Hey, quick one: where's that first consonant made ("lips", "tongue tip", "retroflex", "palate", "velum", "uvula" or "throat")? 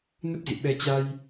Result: tongue tip